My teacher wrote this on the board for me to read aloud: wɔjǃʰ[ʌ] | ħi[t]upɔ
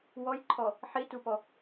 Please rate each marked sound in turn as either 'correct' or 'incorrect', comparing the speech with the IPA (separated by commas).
incorrect, correct